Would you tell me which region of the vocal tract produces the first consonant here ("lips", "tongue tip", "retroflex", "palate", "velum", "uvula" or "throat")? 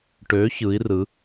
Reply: retroflex